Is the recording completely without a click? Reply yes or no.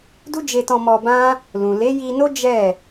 yes